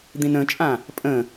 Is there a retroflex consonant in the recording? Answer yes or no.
no